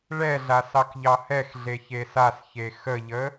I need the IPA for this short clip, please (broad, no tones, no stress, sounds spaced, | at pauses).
ɭ ɛ ɮ a s ɑ k ʎ ɑ h ɛ x ɮ e ç e s a s ç e x ə ʎ ə